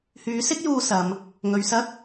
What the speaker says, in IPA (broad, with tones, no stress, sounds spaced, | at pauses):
h yː˨˥ s ɪ˥ k̚ j uː˧ s ɐ˨˧ m | ŋ ɵ˨ ɥ s ɐ˥ k̚